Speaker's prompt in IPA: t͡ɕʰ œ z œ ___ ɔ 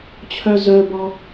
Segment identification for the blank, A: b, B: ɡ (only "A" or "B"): A